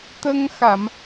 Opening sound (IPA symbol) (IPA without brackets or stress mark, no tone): t̪